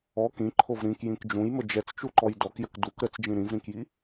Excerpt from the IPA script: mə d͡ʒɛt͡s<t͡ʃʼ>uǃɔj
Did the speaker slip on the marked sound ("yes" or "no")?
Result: yes